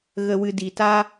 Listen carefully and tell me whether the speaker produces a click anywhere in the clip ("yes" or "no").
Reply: no